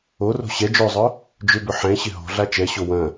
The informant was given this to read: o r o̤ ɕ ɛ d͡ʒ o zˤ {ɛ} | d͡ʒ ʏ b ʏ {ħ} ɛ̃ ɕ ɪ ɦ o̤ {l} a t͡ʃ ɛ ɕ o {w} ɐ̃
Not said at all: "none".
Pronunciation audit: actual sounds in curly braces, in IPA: œ, ħ, ɮ, w

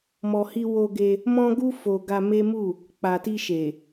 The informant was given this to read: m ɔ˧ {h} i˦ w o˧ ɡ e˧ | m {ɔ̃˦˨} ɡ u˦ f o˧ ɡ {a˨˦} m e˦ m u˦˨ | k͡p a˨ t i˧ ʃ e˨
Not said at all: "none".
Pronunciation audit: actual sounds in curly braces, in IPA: h, ɔ̃˦, a˧

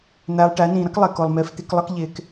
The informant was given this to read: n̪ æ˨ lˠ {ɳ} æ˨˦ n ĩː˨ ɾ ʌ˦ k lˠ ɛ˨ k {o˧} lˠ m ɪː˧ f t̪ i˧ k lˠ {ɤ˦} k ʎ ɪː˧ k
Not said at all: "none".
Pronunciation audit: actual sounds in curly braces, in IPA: ʈ, o˨, ɤ˦

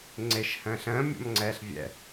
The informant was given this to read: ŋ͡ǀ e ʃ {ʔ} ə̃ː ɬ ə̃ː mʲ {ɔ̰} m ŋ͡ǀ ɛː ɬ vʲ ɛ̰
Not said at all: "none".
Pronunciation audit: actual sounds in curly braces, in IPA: h, ɔ̰

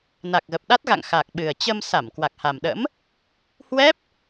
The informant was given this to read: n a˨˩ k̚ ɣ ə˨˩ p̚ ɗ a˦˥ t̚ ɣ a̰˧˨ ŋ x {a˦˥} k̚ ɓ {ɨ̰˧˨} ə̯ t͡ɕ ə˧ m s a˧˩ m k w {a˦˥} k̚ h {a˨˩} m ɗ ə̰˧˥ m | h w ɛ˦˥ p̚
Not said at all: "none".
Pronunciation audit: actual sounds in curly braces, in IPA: a˨˩, ɨ˨˩, a˨˩, a˨˩

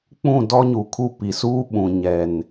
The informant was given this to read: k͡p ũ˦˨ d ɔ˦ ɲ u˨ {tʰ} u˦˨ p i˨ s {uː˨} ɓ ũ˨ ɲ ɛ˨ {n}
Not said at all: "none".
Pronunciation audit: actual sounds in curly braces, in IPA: kʰ, uː˦, n

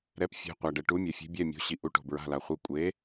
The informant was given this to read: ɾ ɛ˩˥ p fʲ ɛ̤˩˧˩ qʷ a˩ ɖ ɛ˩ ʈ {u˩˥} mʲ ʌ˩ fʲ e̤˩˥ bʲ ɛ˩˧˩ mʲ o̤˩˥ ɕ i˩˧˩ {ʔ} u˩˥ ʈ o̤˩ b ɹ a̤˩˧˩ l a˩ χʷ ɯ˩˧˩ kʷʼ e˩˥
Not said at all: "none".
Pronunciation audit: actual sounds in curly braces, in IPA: u˩˥, ʔ

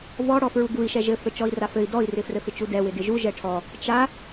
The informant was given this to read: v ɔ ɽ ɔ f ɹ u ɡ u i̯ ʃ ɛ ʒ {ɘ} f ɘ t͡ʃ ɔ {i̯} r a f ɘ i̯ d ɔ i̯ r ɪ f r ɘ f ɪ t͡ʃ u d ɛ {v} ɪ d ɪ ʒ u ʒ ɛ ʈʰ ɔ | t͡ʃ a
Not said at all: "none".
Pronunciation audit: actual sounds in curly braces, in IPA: ɘ, i̯, w

